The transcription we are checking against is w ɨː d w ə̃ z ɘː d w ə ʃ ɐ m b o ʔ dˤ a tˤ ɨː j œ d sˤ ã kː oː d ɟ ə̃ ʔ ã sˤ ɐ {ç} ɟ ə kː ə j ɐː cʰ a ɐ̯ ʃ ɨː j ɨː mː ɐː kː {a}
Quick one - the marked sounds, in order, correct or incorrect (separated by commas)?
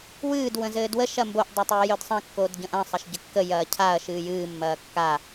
incorrect, correct